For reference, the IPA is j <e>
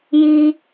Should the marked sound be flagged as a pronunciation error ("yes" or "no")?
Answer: yes